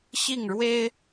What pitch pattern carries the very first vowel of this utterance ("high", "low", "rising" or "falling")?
falling